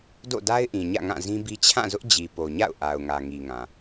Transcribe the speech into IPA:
d o̰˦˨ d a˦ ɪ̯ ʔ ĩ˨ ɲ ä̰˦˨ ŋ ã˦˨ z ĩ˦ b i˦ t͡ɕʰ ã˦˨ z ʊ˦ ʔ d͡ʑ i˨ p o˨ ɲ a̰˦˨ ʊ̯ ʔ a˨ ʊ̯ ŋ ä˨ ŋ i˨ ŋ ã˨

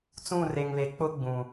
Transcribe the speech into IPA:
t͡s ũ˦˨ r e˨ ŋ β e˨ k͡p ʊ˦ ɡ͡b ũ˨

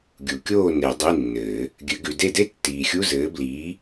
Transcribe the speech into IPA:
ɡʲ u˨˩˦ kʲ oː˥˨ n e˨˩˦ dˤ i˧˥˧ nː ɘː˨˩˦ | ɡʲ ɘ˨˩˦ ɡ ʉ˨ d e˥˨ d e˥ tː iː˨ xʲ u˧˥˧ z ɘː˨˥ b l iː˨˥

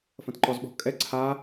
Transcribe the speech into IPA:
f ɐ̃ t ǃ ɔ z ɓ ɔ̤ kʼ ɛ ǀʰ a

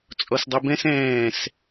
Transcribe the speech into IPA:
t͡sʼ ɔ s dˤ o b ɛ̃ s ɛ̃ː s

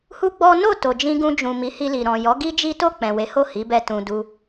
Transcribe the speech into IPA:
h u˦ ɡ͡b ɔ˦ n o˦˨ t o˨ d͡ʒ ĩ˧ ɡ ũ˧ d͡ʒ ũ˨ m i˨˦ h i˧ l i˨ ɾ ɔ̃˨ j ɔ˨˦ ɡ i˦ d͡ʒ i˦ t o˦˨ k͡p ɛ̃˨ w e˨˦ h o˦˨ h i˨˦ b ɛ˧ t ũ˧ d u˧

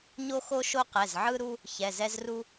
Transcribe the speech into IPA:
ɲ o˦ x o˦ ʃ o˦ q ɛ˩˧˩ z ʕ ɯ˦ ɾ u˦ | ç ɛ˩˧˩ z ɛ˦ z r u˦

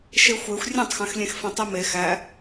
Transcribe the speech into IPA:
ʃ e xʷ e xʷ rʲ ẽ tˤ x æ̃ x lʲ ẽ x f ẽ tˤ i m e x æ

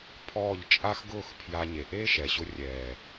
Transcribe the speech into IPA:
pʰ ɔː˦˨ ʎ t͡ʃʼ a˦ x ɡ ʊː˦˨ x pʰ j a˧ ɲ e˨ ʔ eː˦ ʃ ɛ˨ ɕ ʊ˧ rʲ ɛː˨

